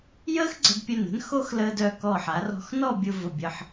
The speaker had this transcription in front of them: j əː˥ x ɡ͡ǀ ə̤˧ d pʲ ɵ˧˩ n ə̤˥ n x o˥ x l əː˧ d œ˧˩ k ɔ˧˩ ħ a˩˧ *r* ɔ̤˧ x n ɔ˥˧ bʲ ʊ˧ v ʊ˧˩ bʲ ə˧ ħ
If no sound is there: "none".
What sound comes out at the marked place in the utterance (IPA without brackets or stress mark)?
r